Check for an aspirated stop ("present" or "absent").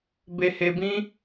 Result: absent